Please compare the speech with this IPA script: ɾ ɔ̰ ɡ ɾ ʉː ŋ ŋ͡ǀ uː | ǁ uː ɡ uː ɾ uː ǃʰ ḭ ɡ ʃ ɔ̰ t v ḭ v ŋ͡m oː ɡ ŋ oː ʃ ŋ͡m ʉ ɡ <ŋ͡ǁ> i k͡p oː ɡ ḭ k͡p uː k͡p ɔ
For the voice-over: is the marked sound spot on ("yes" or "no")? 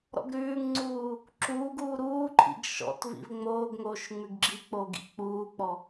no